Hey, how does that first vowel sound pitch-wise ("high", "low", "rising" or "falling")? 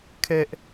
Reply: high